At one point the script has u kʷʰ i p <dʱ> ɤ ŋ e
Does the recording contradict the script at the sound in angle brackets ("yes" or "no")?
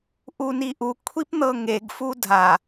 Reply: yes